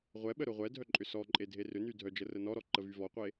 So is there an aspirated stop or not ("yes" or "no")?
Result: no